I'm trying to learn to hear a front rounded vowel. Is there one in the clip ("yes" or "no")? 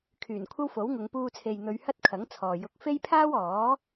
yes